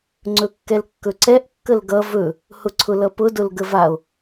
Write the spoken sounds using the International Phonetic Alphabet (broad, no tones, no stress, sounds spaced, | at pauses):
ŋ͡ǀ ɵ kː ɛ l kː ɵ ǀ ɛ ʔ kː ə l ɡ ʌ v ɵ | h ʊ ǀʰ ʊ l ʌ p ʊ d ʊ l ɡ ə v a o̯